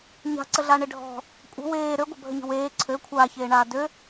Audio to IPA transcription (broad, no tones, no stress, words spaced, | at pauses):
ɲa̤ǀəɮaɳe ɖʱɔ̤ | kʷʼə̤ weː ɾøɡʷɐbʱəɲə̤ weː ǀʰø kʷʰaːçeːɳaː dø